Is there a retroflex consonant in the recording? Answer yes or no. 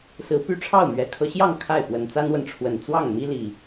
yes